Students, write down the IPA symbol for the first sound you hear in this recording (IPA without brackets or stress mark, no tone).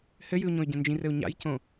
h